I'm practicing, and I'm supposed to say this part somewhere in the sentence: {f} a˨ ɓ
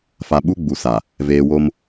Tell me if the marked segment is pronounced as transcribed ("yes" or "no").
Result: yes